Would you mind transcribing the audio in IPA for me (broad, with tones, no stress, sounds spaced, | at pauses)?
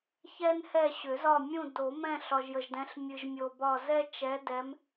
ç ɛ˦ n h ɛ˦˨ ɕ ʏ˨˩˦ z ɒ˦˨ mʲ ũ˦˨ d o˨˩˦ m ɛ̃˦˨ ɬ ɒ˨ ʒ j ə˨ ʒ d ɛ̃˨˦ ɬ mʲ ɨ˨ ʒ mʲ o˨ b ɒ˦˨ z ɛ˦ t͡ʃ ɛ˨˦ d ɛ˨˦ m